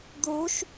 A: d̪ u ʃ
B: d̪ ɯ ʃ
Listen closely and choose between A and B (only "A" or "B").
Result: A